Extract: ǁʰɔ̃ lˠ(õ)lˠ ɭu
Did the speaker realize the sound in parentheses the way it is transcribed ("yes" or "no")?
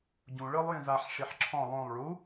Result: yes